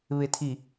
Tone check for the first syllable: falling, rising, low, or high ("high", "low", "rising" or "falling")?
low